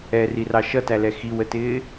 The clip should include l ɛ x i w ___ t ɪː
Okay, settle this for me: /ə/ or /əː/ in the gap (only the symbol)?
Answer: ə